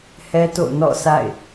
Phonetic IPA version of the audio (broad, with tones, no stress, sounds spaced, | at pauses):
h ɛ˦ t o̰˦˨ n ɔ̰˦˨ sʰ a̰˦˨ ɪ̯